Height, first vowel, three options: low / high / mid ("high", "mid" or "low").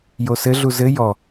mid